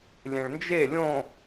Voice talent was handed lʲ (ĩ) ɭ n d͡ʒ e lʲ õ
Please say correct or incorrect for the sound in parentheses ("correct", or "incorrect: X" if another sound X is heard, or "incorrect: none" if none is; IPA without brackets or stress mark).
incorrect: ẽ